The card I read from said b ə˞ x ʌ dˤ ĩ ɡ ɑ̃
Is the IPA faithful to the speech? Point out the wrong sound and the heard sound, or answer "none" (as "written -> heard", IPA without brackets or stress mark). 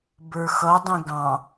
none